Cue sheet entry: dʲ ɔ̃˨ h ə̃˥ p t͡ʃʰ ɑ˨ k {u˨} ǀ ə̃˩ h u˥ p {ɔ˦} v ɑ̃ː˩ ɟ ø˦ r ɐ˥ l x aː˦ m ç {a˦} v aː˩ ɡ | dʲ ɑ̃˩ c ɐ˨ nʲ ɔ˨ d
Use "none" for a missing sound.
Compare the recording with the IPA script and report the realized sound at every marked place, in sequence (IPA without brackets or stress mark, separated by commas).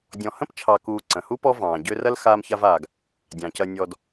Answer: uː˨, ɔ˦, a˦